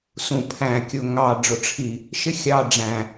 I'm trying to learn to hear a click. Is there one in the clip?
no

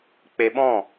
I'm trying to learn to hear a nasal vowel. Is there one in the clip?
yes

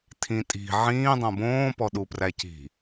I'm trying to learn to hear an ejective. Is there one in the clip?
yes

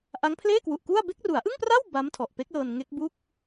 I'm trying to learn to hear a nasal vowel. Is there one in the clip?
no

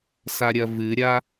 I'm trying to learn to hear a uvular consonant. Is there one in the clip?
no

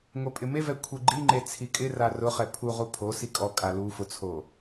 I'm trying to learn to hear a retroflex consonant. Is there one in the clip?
no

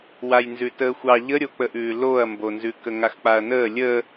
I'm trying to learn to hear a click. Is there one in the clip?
no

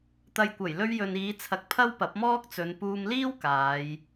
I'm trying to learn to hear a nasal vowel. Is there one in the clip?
no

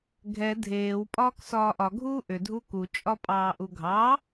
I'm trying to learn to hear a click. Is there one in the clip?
no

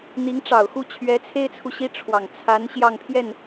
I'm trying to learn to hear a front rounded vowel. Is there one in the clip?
no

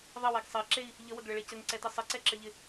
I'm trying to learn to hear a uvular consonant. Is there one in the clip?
no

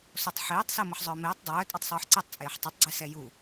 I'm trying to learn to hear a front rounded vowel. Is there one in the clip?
yes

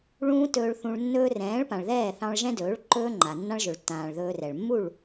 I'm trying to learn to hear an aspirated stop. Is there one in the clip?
no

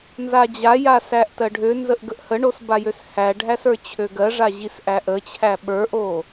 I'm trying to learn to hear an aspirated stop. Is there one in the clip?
yes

